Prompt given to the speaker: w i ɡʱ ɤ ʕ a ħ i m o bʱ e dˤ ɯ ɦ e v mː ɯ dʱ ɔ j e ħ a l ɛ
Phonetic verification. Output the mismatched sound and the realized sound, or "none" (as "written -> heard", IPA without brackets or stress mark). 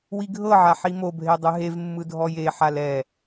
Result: none